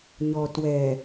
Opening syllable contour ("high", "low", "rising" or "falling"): low